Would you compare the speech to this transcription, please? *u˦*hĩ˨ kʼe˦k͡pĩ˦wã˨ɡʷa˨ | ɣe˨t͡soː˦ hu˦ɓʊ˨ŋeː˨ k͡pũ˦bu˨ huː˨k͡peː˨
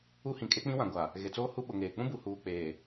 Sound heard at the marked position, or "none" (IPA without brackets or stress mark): u˦